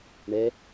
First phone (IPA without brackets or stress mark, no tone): ɳ